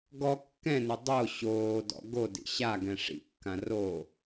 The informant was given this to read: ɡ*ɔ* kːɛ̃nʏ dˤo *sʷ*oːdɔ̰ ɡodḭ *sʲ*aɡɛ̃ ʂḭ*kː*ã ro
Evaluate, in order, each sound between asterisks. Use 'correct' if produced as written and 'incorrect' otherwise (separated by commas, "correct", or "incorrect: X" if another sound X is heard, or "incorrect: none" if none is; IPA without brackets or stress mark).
correct, incorrect: ɕ, incorrect: ɕ, correct